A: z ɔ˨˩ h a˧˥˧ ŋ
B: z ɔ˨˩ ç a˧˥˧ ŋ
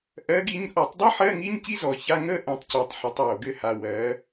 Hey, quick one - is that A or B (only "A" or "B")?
B